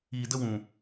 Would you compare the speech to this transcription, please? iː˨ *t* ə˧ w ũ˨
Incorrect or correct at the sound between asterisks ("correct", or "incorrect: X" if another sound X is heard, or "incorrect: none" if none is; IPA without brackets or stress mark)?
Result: incorrect: d